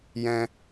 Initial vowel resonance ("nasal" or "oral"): nasal